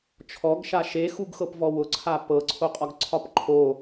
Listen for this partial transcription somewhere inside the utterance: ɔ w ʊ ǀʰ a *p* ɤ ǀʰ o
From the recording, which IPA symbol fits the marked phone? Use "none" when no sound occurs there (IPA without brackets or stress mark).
p